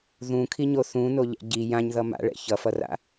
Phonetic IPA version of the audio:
ð ũ kʰ i ɲ o θ ũ n o ʎ ɛ̰ ɟ i j ã ɲ ð ʌ m a̰ ɭ ɛ̰ ç ʌ f ʌ r a̰

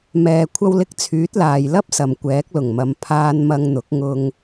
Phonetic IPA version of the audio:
m ɛː˨ kʷʰ ɐ˧ w l ɪ˧ k̚ t͡sʰ yː˨˥ t̚ l aː˨ j l ɐ˥ p̚ s ɐ˨ m kʷ ɛː˨˥ k̚ l ʊ˨˩ ŋ m ɐ˨˧ m pʰ aː˧ n m ɐ˧ ŋ n̪ ʊ˨˥ k̚ ŋ ʊ˧ ŋ

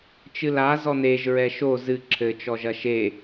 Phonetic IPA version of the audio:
t͡ʃ ɨ l a z ɔ n e ʒ ɹ ɛ ʃ o z ɨ ǁʰ ɘ t͡ʃ ɔ ʒ ɐ ʃ e

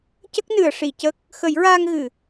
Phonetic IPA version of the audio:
c ə˦˥ k̚ n ɨ˨˩˨ ə̯ ʂ i˨˩˨ c ə˦˥ k̚ | x ə˨˩˦ j ɹ aː˧ ŋ ɣ ɨ˨˩˨

